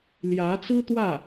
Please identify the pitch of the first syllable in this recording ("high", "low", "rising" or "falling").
rising